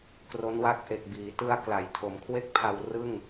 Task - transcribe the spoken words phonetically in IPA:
k r o˦˥ n w a˦˥ k̚ ʔ e˨˩ k̚ b iː˩˦ t ɯ˧ a̯ k l a˩˦ j tʰ o˩˦ m kʰ w e˥˩ k̚ pʰ a˧ w r ɯ˥˩ ŋ

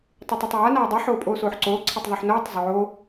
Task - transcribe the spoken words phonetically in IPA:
tˤ e tˤ o tˤ j a n aː dˤ i ħ oː pʼ oː s oː ħ ǀ oː ǀʰ ɛ tˤ ðˤ u ħ n oː tˤ zˤ oː

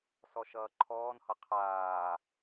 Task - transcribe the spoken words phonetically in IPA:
s ɔ ʃ ʌː ǃʰ ɔː n h ʌ qʰ aː

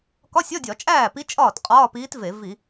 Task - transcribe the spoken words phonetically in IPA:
k ɒ˧˥˧ sʲ ɒ˧˥˧ dʲ ɒ˧˩˧ t͡ʃʼ æː˥˩ p i˧˥ t͡ʃʼ ɒː˥˩ t qʼ ɒː˧˥˧ p iː˧˥ t v e˧˩˧ v i˧˩˧

